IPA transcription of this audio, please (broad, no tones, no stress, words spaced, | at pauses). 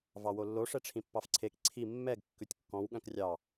vɑwolːo ʂɛʈ͡ʂʰĩpːɑfǀʰek ǀʰi mːɛɡ kːʉtʲkːɔ̃w ɠœ̃krʲɑ